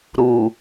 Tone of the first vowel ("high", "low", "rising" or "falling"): low